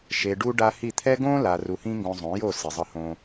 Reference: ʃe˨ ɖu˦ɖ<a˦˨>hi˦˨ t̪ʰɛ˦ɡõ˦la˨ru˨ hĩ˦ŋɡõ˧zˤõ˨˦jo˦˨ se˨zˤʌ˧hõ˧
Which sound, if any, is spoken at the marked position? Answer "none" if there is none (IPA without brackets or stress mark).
a˦